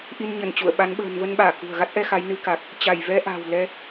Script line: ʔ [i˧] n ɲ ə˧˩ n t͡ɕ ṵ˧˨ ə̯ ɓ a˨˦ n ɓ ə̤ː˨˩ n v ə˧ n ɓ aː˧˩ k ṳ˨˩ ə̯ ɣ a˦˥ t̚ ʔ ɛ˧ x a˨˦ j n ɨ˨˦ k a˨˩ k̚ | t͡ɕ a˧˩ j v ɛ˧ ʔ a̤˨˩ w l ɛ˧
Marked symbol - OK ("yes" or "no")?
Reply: yes